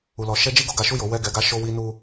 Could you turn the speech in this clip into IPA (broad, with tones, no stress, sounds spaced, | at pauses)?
u˨ l ɔ˨˦ ʃ ɛ˦ d͡ʒ i˦ ɡ o˦˨ ɡ a˨˦ ʃ u˦˨ j o˨˦ w ɛ˦˨ ɡ ɛ˧ ɡ a˦ ʃ o˧ w i˧ n u˧